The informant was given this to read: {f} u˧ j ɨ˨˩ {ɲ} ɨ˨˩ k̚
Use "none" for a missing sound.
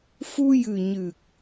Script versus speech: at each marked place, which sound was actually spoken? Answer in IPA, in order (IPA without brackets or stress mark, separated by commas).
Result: f, ɲ